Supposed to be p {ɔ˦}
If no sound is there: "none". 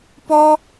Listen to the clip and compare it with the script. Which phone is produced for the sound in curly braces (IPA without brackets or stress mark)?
ɔ˦